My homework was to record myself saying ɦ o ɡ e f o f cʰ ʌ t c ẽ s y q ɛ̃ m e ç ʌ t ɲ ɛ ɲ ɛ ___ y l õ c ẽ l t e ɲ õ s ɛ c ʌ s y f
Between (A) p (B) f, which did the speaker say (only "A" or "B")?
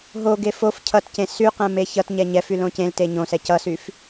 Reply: B